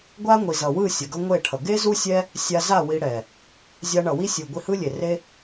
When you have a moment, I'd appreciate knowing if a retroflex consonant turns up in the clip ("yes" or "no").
yes